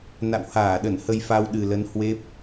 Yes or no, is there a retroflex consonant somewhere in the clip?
no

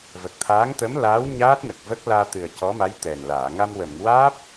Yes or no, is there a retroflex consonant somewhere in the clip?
no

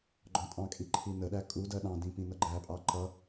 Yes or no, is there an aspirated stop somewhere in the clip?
yes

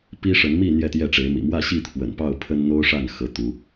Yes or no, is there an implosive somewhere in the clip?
no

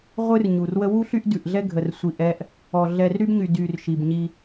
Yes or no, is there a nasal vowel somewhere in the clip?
no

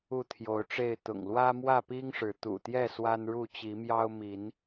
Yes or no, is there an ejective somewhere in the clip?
no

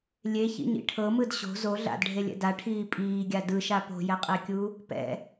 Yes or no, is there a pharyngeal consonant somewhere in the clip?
no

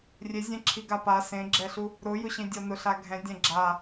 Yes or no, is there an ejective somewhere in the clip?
no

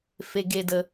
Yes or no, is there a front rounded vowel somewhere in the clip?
no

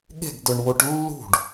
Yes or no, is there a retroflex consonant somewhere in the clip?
yes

